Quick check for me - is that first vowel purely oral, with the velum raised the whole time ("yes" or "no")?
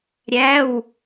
yes